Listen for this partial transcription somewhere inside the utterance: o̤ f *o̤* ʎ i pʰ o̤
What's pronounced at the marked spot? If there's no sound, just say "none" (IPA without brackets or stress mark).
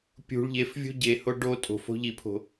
o̤